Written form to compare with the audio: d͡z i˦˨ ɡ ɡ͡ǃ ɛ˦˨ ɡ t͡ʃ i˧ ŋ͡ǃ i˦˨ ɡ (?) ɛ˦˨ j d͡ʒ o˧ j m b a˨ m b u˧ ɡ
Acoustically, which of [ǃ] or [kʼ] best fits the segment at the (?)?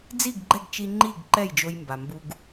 ǃ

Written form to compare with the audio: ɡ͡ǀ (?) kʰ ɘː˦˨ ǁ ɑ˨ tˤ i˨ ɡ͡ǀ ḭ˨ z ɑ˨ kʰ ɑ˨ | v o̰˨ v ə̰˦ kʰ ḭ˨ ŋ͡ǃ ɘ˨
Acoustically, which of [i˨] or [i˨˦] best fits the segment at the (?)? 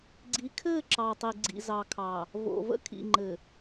i˨˦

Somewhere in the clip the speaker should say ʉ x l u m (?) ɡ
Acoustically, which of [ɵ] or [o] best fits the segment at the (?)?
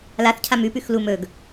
ɵ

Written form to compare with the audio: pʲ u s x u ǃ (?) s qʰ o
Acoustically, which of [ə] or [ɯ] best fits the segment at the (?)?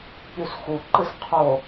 ɯ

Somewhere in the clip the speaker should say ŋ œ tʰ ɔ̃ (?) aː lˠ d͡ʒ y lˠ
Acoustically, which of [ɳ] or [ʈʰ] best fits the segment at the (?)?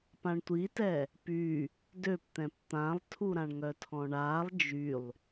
ɳ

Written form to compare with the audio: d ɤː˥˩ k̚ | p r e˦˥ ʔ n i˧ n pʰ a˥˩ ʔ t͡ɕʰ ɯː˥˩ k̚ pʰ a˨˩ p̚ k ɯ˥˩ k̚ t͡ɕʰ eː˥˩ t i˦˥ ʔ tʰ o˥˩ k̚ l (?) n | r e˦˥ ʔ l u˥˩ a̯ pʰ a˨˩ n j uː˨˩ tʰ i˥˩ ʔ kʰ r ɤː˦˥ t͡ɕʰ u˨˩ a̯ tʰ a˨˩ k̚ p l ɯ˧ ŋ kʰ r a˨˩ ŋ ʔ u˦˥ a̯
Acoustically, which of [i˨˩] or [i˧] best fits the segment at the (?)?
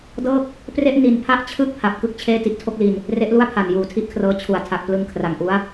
i˧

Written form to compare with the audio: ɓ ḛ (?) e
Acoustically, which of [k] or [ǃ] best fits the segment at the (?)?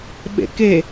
k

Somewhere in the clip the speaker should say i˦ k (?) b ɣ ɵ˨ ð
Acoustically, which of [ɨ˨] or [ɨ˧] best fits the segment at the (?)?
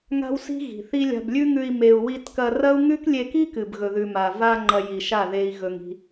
ɨ˨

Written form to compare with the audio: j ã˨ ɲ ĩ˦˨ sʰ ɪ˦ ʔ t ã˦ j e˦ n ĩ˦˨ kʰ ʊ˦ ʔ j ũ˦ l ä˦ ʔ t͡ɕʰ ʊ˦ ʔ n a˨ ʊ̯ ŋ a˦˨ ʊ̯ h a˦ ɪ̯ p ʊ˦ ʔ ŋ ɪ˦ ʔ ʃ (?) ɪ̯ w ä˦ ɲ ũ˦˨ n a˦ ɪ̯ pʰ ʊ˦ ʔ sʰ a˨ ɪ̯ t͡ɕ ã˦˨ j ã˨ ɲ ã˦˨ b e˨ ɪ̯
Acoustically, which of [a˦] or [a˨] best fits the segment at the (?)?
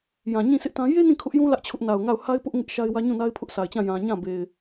a˦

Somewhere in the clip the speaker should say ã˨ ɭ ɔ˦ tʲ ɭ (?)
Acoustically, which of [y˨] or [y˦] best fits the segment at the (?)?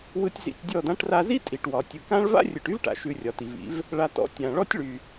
y˨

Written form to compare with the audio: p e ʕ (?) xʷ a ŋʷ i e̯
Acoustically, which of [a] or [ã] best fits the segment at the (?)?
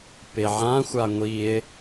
ã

